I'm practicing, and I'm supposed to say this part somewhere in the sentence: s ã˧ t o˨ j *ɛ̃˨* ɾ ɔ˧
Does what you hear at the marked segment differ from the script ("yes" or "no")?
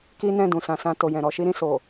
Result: no